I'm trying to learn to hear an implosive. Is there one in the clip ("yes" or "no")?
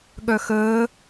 yes